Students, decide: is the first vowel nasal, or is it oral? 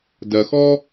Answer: oral